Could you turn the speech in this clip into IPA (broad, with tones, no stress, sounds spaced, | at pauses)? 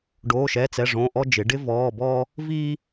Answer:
ɖ oː˧˥˧ ʃ ɛ˧˥˧ t͡s ɛ˧˥˧ ʐ õ˧˥˧ ʔ ɔ˥ d͡ʒ ɪ˨˥ ɖ ɪ˥ v ɔː˧˥˧ b ɔː˥ | v iː˥